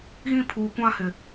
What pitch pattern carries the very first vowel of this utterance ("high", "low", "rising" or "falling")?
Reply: high